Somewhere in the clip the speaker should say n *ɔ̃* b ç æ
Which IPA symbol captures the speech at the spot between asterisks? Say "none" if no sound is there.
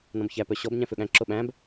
ɔ̃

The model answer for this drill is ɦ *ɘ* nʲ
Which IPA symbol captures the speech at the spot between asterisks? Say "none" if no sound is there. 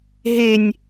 e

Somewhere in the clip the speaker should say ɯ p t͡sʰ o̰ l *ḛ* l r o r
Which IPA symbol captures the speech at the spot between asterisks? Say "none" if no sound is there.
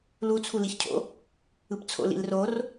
ḭ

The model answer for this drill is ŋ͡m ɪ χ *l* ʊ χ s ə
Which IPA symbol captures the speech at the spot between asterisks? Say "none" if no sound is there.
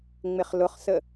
l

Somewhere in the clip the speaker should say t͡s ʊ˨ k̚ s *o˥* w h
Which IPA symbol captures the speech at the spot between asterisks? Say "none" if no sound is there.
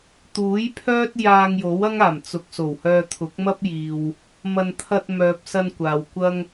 o˨˩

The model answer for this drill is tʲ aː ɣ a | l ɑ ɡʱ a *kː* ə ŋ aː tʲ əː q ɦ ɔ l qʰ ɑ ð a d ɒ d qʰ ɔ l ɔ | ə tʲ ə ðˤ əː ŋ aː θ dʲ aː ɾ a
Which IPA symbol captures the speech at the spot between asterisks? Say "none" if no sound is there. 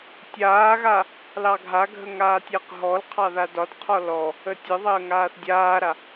ɡʱ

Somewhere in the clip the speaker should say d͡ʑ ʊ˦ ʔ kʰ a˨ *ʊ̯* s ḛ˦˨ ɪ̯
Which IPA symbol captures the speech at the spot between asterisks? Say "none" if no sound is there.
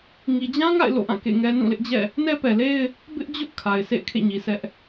ɪ̯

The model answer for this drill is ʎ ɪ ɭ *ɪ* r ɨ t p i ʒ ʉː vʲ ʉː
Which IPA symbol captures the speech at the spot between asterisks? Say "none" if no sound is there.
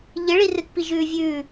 i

